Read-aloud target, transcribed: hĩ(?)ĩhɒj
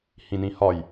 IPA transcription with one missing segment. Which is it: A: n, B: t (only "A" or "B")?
A